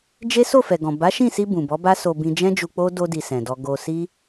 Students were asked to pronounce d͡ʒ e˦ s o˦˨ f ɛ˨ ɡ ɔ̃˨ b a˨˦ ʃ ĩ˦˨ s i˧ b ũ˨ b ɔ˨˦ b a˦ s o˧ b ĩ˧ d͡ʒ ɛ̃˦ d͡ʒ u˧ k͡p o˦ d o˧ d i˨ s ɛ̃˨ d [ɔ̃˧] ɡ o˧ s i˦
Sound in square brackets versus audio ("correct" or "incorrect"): incorrect